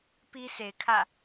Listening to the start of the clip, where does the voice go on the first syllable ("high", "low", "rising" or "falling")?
high